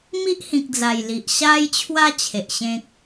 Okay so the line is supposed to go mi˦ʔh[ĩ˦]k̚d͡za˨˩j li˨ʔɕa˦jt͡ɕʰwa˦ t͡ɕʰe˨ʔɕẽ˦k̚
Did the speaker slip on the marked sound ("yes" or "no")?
yes